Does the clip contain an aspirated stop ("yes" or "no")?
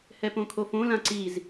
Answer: yes